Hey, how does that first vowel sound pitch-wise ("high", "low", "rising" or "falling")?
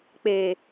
low